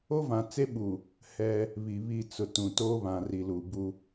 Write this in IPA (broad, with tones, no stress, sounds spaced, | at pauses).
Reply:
o˦ v ã˨ t͡s e˦ ɓ u˨ | h ɛ˦ | β i˨ β i˦˨ t͡s ʊ˨ t ũ˨ t o˦ β ã˨ r i˨ l u˨ b u˦